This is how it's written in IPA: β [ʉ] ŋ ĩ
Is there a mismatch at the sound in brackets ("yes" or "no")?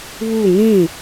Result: yes